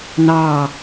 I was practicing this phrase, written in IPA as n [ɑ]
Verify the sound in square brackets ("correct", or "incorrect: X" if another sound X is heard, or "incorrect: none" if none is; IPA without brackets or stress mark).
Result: correct